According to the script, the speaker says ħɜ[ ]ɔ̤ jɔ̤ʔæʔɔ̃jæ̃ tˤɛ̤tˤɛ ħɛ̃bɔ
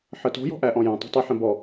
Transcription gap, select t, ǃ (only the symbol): t